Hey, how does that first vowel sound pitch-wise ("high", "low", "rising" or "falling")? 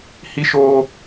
high